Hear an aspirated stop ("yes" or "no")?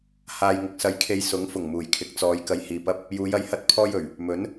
yes